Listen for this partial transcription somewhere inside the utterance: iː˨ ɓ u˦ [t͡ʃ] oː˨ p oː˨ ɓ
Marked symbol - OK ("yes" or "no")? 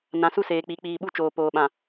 yes